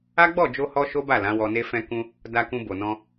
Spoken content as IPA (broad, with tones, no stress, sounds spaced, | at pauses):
a˦ ɡ͡b ɔ˦˨ d͡ʒ o˧ h ɔ˦ ʃ o˦ b a˦˨ l ã˨˦ w ɔ˧ n e˦ f ɛ̃˦ k ũ˧ | d a˧ k ũ˧ b o˨ n ɔ̃˧